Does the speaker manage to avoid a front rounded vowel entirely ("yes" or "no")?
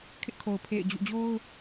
yes